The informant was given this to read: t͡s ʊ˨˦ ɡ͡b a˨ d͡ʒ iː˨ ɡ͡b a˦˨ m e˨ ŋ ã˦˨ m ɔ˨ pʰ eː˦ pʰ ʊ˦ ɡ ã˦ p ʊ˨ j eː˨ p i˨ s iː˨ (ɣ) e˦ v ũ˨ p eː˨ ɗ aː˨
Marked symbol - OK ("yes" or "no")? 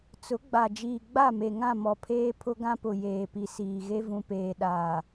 yes